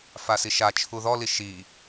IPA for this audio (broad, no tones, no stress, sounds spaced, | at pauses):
f a s i ʃ a t͡ʃʰ u ð ɔ l i ʃ i